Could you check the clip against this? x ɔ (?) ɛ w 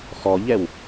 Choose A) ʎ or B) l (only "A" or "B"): A